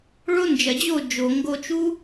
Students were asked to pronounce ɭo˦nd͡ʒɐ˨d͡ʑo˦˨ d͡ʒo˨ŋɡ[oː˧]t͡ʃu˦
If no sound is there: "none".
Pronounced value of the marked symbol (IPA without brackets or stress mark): o˧